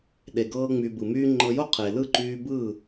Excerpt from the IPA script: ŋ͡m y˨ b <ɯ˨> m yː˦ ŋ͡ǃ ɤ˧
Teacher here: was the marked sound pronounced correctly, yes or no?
yes